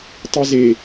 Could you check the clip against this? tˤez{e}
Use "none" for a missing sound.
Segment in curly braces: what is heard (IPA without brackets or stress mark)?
e